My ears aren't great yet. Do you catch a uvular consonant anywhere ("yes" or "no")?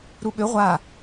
yes